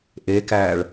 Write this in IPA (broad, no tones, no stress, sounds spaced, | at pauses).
ʔ e k æː ɭ